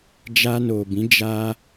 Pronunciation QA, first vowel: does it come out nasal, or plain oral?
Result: oral